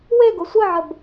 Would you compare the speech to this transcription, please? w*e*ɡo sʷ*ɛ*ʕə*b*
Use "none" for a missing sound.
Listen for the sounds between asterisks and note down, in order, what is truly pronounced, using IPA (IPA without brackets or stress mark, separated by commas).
e, ə, b